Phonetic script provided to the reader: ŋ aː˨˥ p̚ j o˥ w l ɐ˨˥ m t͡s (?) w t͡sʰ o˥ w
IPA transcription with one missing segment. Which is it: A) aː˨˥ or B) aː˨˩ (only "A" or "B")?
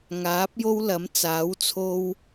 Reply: A